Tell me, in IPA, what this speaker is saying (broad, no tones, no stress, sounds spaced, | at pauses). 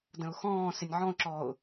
d ə̃ ʊ̯ x ɔ̃ː s ɪ nʲ ʕ ɔ̃ ʊ̯ ǁ ɔː ʊ̯